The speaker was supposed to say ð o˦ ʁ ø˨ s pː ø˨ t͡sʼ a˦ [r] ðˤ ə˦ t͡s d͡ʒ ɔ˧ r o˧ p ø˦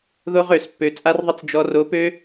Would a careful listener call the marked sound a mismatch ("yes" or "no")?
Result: no